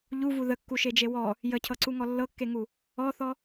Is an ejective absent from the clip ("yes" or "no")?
yes